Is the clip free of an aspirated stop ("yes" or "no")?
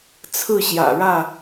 no